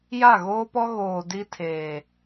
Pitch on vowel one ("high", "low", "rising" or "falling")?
falling